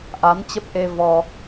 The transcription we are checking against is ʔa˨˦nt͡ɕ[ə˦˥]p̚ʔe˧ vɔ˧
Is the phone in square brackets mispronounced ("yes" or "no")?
no